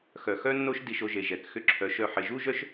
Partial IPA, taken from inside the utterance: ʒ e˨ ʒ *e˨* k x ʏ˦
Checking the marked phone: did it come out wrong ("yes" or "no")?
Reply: yes